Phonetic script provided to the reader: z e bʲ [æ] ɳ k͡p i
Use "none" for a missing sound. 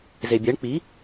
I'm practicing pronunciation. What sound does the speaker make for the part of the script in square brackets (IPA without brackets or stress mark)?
ɛ